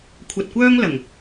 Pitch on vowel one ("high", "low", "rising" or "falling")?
low